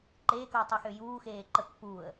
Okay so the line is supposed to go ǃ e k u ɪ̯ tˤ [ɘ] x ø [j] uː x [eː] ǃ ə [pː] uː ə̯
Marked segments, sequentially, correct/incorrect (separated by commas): incorrect, correct, correct, correct